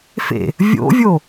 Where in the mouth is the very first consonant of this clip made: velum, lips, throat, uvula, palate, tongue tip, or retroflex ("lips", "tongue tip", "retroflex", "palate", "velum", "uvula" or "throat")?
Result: lips